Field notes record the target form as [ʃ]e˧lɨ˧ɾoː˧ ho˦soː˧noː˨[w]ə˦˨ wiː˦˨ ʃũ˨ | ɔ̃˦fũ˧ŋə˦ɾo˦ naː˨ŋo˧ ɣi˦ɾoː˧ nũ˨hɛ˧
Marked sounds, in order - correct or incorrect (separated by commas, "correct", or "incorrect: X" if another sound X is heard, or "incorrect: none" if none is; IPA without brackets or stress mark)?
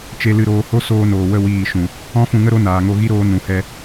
incorrect: t͡ʃ, correct